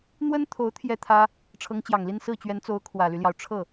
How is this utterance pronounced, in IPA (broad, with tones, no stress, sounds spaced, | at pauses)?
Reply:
n̪ w ə˥ n t̪ʰ o˧˥ ʊ̯ t̪ʰ j ɛ˥˩ t̪ʰ ä˥ | ʈ͡ʂʰ ɤ˧˥ ŋ t͡ɕ j ɑ˨˩ ŋ l i˥˧ n s ɹ̩˥˩ t͡ɕ ɥ ɛ˧˥ n t͡s o˧˥ ʊ̯ kʰ w ä˨˩ l y˦ l j ɑ˩ ʊ̯ ʈ͡ʂʰ ɤ˥˩